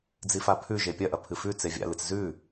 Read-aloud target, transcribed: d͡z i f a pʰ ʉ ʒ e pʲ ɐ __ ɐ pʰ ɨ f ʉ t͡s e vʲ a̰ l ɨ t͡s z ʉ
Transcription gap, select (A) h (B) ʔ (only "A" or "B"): B